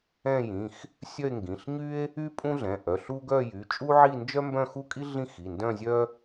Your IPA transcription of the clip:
ɛ̃˥˧jĩ˩˧˩x | sʲœ˥˧e̯ŋɡĩ˩˧˩ɬ ɲy˥e̯ | y˥pʼũ˥ɮɛ̃˩˧˩ ʔœ˩˧˩ɬu˥ ɡœ˥˧jy˩˧˩ t͡ʃʼu˥ʕi˥˧nd͡ʒœ˥ mbœ̃˥˧xu˥˧kʼi˥ ɮĩ˥˧ xi˩˧˩ndœ̃˥˧zʲœ˥

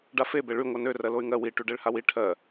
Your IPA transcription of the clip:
ɖafe beɭy ŋʷanø rɜloy̯ŋɜ wi ʈyɖeɭhawi ʈʰɜ

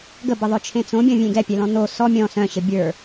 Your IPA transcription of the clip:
ɡəbəðˤœt͡ʃʰẽ t͡sõbʲɔ̃vʲẽ ɡɛpʲɛlɔ̃ no sɔ mʲɔ̃ sœ̃ɕə bʲə˞

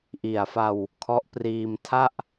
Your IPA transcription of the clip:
ʔi˨˩a̯fa˧w | kʰɔ˦˥ʔpriː˧mtʰa˥˩ʔ

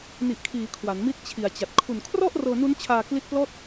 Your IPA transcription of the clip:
ni˨˩ʔkʰiː˩˦ kʰwa˩˦nmi˦˥t̚t͡ɕʰi˨˩a̯t͡ɕa˨˩t̚ kʰu˨˩nkʰrɔ˥˩ʔ rɤː˧nu˦˥n t͡ɕʰaː˧kli˦˥t̚plɔː˥˩t̚

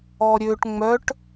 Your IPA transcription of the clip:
ɔɾʲøʈ ŋ͡mœʈ

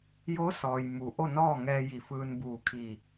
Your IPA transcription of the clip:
jo˧˥ sɔː˩jmu˩˧ʔo˥˨ nɔː˥˨ŋɛː˧ji˧˩fɯː˧n buː˧˩kʰi˧˩

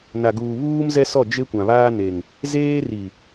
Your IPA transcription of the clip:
na˨ɡuː˨βuː˦mzɛ˦ sɔ˦˨d͡ʒe˦ kʷã˨βaː˦ne˨ŋ | zeː˦ ri˨

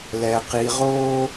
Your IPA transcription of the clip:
lɛ˨qi˨ʁoː˦

